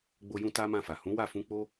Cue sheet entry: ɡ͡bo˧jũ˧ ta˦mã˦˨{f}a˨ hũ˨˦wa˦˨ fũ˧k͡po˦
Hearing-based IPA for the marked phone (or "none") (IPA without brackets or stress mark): f